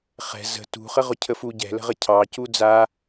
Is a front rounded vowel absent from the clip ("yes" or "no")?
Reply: yes